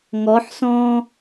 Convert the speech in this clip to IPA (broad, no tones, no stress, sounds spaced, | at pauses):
ŋ ɔ ħ s ɔ̃ː